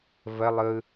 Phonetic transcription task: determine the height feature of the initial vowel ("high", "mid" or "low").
mid